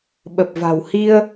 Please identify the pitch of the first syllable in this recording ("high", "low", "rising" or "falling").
low